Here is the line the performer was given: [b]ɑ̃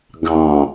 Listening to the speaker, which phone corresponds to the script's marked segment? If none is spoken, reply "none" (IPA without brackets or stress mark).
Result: ɡ